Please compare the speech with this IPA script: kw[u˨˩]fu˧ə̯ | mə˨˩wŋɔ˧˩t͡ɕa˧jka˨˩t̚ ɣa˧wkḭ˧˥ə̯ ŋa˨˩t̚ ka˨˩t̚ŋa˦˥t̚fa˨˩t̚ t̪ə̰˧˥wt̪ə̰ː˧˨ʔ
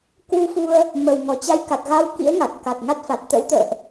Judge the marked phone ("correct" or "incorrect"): incorrect